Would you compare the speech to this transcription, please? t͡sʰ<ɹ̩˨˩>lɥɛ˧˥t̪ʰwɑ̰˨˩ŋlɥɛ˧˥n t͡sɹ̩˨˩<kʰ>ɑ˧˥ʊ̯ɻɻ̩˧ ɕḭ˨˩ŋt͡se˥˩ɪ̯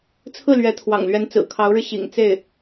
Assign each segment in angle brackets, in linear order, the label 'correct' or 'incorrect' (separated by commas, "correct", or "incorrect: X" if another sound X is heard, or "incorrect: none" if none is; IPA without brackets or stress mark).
incorrect: ɹ̩˥˩, correct